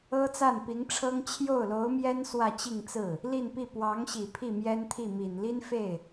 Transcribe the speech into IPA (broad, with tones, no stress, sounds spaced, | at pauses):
ɤ˥ t͡s a˥˩ n p i˧˥ ŋ ʈ͡ʂʰ ɤ˥ ŋ t͡ɕʰ j o˥˩ ʊ̯ l o˧˥ ʊ̯ m j ɛ˥ n s w ä˥˧ t͡ɕ i˥˧ ŋ t͡s ɹ̩˥˩ | l i˥˧ n p i˥˩ p w ɑ˧˥ ŋ ɕ i˨˩ pʰ i˥˩ m j ɛ˥ n t̪ʰ i˥˩ m i˨˩ n l i˥ n f e˥˩ ɪ̯